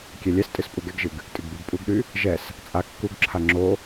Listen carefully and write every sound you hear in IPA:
kʲ ɛ lʲ ɛ s tʼ ɨ s pʼ u ɡ ɛ ɡ ʒ ɨ ɡ | tʼ ɨ ɡ b y ɡ pʼ u ɡ ɗ y | ʒ ɛ s | t͡sʼ a kː u ɡ ǁʰ a ŋ͡ǁ o

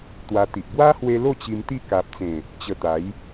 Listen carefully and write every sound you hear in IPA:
t̪ w a˧ t̪ i˨ ʔ ɡ w a˦ h w e˧ l o˥˧ t͡ɕ i˧ m t̪ i˦ k a˨ p̚ t͡s ẽ˨˩ | t͡ɕ ə˧ t̪ a˨˦ j

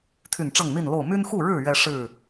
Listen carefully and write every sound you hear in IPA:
t̪ʰ y˥˨ n ʈ͡ʂ ɤ˥˨ ŋ n̪ i˥˨ n l o˥˨ ʊ̯ m y˦ n x u˥˨ ɻ ɻ̩˥˨ ɥ ɛ˦ ʂ ɻ̩˥˨

